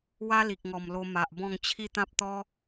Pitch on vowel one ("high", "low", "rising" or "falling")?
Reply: high